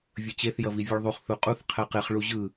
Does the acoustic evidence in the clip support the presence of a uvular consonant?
yes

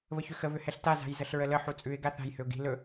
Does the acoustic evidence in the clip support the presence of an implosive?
no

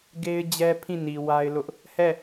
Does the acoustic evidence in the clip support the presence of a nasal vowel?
yes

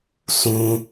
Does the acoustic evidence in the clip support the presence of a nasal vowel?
yes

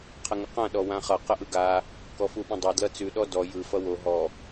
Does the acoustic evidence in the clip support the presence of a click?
no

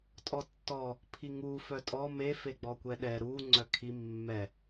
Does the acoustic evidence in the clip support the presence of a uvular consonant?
no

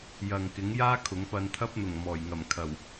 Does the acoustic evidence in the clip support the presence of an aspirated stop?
yes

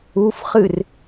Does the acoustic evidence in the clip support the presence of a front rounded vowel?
no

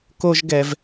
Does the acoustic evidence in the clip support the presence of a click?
no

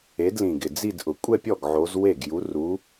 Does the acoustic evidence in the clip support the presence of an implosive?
no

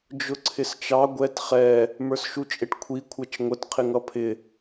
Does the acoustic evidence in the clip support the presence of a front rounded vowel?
no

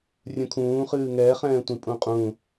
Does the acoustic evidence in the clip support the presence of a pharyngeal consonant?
no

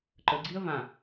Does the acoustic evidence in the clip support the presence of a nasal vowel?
yes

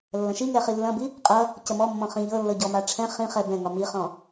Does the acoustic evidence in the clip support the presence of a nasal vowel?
yes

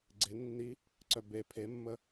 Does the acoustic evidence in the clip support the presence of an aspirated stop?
yes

